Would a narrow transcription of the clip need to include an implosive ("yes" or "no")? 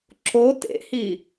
no